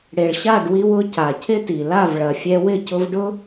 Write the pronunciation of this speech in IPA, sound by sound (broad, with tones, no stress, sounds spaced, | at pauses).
ɽ e˨ ɭ ɕ a˦˨ ɖ w i˧ w ʊ˨˦ c a˨ cʰ ɪ˦ t i˨ l a˦˨ v ɭ ɐ˨ fʲ ɛ˧ w ɪ˦˨ c ʊ˧ v ɖ ʊ˦